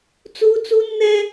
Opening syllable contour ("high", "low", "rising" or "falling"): high